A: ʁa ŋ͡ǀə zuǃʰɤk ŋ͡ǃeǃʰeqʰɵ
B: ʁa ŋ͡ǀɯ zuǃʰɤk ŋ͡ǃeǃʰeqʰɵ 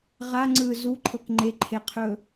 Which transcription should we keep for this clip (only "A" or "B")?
B